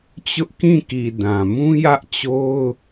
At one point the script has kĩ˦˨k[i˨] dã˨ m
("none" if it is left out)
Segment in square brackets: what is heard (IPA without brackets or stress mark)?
i˨